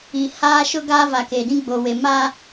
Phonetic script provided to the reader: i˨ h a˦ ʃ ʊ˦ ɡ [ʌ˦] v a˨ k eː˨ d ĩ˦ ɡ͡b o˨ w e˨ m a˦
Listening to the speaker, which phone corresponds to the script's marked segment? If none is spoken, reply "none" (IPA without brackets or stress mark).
a˦